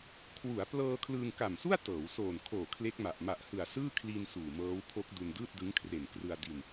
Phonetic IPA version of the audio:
kʰ w u˩˦ a̯ p l ɤː˧ kʰ l ɯː˧ ŋ k a˨˩ m s u˥˩ a̯ t ɤː˩˦ w s oː˨˩ n kʰ oː˨˩ kʰ l e˦˥ k̚ m a˨˩ ʔ m a˨˩ ʔ h ɯ˨˩ a̯ s ɯː˥˩ kʰ l i˧ n s uː˨˩ m ɤː˦˥ w pʰ o˦˥ k̚ d u˧ n d ɯː˥˩ t̚ d ɯ˦˥ ŋ kʰ r e˨˩ n k r ɯ˧ a̯ d i˧ n

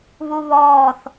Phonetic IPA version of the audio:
β u β ɔː θ

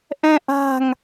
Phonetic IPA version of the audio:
ʔ ɛ̃ ʔ a̤ ŋ

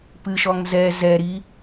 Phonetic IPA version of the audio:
p ɨ ʃ ɔ ŋ z ɛ z ɛ ɾ i

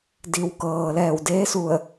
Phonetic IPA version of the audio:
d i˩ w k ɤː˩ l ɛː˧˩ w d eː˧˥ s u˧˩ ə̯

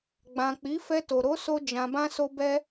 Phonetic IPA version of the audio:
ɡ͡b ã˨ k͡p i˨˦ f ɛ˧ t o˨ ɾ o˨˦ s o˧ d͡ʒ ã˨ b ã˧ s o˧ b ɛ˧

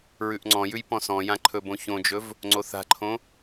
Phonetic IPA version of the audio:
ɹ ʉ ʔ ŋ͡ǀ ɔ̃ j ʉ j p ɔ̃ s ɔ̃ j ã ǃʰ ɵ b õ ç õ d͡ʒ ɵ v | ŋ͡ǀ o θ a̤ ǃʰ õ

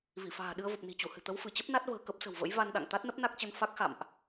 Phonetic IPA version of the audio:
v i˧˩ f a̤ː˨˩ ɗ ɨ˧ ə̯ v ə˨˩ p̚ n i̤˨˩ t͡ɕ u˧˩ h ɨ̤˨˩ t̪ ə˨˦ w f ɨ˧˩ t͡ɕ ə˦˥ p̚ n a˦˥ t̚ v ə̤ː˨˩ k ə˦˥ p̚ s ə̤˨˩ w v ə̰˧˥ j v a˧ n ɗ a̰˧˨ ŋ t̪ a˦˥ t̚ n ə˦˥ p̚ n a˦˥ k̚ t͡ɕ ə˧ n f a˦˥ k̚ x a̰˧˨ m ʔ

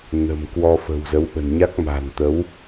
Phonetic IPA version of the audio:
n ə̤˨˩ m k w ɔ˧ f ə̤˨˩ w z ə˨˦ w ɓ ə̤˨˩ n ɲ a˦˥ k̚ m a̤˨˩ n t̪ ə˨˦ w

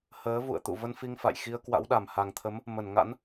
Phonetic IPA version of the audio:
h əː˨˦ v ṵ˧˨ ə̯ t̪ ṵ˧˨ v ə˧ n f i˧ ŋ f a̰˧˨ j x i˧ ə̯ k w a̰˧˥ w ɗ a˨˩ m h a˨˩ ŋ t̪ʰ ə˨˦ m | m ə˧˩ n ŋ a̰˧˥ n

